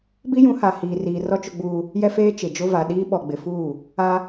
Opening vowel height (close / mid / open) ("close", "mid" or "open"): close